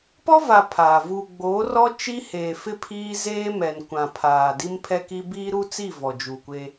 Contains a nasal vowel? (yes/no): yes